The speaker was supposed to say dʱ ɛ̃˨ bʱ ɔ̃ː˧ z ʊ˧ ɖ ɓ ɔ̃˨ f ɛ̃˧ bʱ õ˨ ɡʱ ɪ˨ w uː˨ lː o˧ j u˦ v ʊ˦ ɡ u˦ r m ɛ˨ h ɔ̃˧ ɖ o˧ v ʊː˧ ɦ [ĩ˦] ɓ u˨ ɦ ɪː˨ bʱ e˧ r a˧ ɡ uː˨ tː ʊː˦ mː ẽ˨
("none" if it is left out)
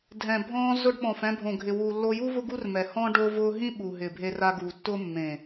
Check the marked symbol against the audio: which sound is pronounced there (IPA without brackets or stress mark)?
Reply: ĩ˦